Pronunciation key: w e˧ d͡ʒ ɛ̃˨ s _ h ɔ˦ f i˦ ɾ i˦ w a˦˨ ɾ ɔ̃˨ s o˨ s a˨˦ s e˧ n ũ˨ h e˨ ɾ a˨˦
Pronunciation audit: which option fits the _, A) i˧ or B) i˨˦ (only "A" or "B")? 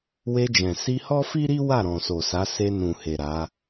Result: A